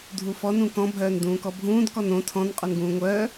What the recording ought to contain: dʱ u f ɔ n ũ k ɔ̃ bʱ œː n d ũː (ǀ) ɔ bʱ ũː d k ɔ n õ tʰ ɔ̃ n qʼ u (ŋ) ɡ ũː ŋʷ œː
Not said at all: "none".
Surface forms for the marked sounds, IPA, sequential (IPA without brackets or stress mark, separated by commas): k, n